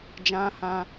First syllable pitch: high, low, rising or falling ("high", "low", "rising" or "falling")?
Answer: high